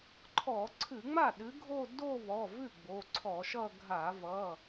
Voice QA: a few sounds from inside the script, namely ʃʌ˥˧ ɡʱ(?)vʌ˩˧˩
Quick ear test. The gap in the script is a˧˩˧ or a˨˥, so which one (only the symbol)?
a˧˩˧